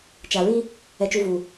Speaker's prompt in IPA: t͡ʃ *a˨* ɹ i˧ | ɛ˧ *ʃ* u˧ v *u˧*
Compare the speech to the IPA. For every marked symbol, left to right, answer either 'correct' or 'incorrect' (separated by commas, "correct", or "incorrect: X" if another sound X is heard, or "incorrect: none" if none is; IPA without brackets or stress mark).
correct, incorrect: t͡ʃ, incorrect: u˨